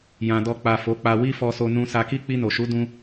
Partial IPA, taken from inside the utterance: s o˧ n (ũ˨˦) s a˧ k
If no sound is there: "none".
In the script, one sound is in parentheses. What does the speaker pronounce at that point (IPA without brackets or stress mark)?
ũ˧